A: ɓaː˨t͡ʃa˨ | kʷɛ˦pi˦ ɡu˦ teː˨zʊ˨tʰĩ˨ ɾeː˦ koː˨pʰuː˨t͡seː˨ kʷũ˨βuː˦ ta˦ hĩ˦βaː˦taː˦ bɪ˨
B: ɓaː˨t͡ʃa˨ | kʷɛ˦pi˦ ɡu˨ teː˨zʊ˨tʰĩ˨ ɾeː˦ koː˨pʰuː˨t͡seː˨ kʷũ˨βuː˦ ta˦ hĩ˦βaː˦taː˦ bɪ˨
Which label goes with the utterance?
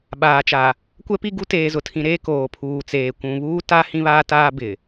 A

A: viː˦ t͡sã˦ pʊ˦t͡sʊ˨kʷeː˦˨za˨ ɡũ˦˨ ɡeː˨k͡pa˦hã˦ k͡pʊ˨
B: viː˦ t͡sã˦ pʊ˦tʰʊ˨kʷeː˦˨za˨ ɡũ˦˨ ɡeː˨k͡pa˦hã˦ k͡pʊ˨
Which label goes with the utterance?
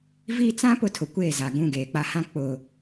B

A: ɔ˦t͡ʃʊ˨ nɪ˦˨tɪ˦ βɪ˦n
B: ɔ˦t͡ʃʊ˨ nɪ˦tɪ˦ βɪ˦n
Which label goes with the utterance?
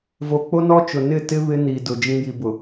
A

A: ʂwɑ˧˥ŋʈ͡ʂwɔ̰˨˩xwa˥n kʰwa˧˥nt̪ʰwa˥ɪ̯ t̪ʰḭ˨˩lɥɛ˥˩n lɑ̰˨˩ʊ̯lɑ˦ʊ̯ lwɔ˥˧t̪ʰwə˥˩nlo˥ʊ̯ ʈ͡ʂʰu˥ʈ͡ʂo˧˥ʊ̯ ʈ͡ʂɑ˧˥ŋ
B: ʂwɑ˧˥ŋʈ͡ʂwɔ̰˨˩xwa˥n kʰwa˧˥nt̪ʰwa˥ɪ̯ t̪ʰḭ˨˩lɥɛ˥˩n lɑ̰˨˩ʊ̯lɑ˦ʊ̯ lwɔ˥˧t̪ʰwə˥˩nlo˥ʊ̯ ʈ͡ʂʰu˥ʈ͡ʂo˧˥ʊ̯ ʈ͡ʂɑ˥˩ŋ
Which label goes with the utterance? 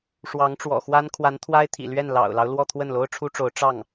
B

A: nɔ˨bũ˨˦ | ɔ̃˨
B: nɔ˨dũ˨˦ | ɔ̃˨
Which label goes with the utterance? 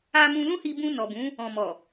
A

